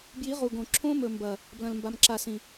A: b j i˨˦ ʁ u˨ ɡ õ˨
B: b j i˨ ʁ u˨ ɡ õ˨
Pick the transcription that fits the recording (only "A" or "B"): A